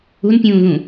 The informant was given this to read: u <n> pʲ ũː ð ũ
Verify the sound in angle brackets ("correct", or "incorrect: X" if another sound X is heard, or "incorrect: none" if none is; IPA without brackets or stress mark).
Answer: correct